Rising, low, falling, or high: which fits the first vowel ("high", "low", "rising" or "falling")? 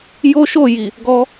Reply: high